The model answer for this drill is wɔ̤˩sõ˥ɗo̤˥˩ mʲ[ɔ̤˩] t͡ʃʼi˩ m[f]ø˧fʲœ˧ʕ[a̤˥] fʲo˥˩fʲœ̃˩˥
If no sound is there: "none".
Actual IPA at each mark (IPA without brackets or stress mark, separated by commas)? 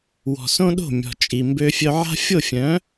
ɔ̤˩, b, a̤˥